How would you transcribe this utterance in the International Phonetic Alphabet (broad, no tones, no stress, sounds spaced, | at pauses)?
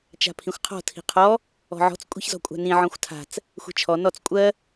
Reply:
t͡ʃ a̤ pʰ ĩ xʷ qʰ ɔ̤ tʰ i̤ qʰ ɔ | ɔ̤ ʕ ɔ̤ t͡s kʷʼ i̤ ç z ɔ̤ kʷʼ a̤ n ĩ ʕ ɔ̃ xʷ tʰ a̤ t͡s | xʷ i̤ t͡ʃʰ ɔ n ɔ t͡s kʷʼ ɜ